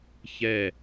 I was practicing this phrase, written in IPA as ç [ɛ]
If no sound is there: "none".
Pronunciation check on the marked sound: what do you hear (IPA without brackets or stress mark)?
ɛ